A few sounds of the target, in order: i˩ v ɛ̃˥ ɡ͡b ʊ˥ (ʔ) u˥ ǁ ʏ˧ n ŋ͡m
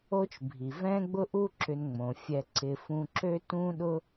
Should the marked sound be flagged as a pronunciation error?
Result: no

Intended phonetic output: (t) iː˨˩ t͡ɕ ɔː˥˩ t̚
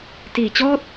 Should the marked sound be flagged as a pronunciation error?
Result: no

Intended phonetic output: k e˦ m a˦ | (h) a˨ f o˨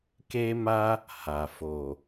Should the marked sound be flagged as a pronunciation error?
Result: no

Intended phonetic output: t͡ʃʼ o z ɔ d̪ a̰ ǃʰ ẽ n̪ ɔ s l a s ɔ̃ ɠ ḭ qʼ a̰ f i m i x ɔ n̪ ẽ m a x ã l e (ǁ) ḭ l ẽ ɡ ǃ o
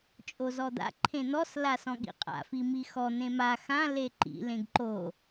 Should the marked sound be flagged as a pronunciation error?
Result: yes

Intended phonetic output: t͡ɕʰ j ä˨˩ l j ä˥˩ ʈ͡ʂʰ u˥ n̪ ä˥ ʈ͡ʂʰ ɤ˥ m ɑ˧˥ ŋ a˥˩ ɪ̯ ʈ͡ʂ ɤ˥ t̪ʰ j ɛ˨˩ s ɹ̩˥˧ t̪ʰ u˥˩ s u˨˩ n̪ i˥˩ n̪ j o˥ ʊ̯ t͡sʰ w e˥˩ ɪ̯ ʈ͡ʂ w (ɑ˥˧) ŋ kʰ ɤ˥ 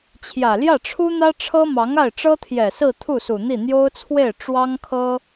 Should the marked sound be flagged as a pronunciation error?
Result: yes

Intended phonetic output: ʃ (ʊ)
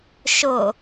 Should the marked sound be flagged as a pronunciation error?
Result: no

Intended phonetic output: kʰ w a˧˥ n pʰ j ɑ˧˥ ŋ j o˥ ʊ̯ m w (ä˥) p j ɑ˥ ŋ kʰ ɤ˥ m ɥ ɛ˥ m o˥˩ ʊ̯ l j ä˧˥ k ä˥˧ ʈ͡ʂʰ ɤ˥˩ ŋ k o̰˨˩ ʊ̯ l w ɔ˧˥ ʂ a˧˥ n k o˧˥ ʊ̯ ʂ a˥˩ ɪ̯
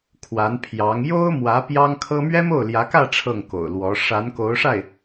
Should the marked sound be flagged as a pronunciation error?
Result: yes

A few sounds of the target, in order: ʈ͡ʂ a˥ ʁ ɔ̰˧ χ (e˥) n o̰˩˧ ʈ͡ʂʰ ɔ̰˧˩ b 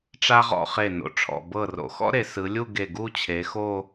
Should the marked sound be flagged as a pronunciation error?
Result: yes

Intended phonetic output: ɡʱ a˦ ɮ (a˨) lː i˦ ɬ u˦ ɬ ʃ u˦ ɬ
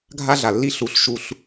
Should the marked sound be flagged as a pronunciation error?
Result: no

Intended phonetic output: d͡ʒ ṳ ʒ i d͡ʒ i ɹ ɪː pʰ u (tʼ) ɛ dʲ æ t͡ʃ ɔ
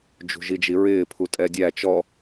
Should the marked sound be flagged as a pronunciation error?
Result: no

